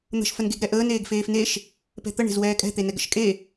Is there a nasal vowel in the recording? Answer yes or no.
no